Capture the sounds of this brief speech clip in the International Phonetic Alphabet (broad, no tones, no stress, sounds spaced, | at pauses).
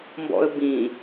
m b ɔ̰ ə̯ b ĩ